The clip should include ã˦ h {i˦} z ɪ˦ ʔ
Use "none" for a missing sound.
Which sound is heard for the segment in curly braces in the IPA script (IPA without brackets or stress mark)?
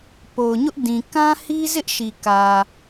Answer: i˦